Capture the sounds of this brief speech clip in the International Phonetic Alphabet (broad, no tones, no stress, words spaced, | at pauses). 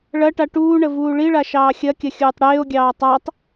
ɭɐʈa ʈuːɳə vuːɭiɭa ʃɑːxʲɐkʲɐ xʲuːtˤɽeːo̯ɡʲɑː tˤatˤ